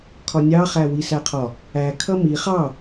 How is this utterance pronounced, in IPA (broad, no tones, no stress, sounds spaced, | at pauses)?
kʰ ɒ nʲ ɑ χ æ w i s æ qʰ ɒ | æ kʰ ʌ m i χ ɑ